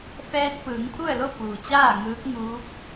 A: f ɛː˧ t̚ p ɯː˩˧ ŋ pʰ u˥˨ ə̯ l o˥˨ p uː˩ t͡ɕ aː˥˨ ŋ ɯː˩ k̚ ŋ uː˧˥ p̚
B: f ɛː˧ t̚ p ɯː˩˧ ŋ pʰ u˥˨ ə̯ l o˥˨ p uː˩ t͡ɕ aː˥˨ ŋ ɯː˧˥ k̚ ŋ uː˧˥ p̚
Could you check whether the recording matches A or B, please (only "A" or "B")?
B